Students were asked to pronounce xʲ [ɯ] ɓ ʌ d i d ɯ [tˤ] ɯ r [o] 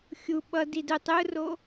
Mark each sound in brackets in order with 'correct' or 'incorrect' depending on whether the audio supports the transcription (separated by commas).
incorrect, correct, correct